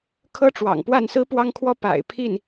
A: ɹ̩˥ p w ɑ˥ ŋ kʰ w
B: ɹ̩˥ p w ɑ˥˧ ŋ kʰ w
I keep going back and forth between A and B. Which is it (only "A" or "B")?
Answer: A